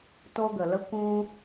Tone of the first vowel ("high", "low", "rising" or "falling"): high